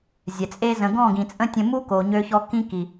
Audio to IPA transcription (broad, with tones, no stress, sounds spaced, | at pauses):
zʲ ɛ˨ t͡sʼ e˦ z ə̃˧ ɡ ɔ̃˦˨ ɡ ĩ˨ t͡sʼ ə̃˦ tʲ ə̃˧ m u˦ k o˨ ɲ ø˧ ç ɔ˧ k ĩ˦ k i˨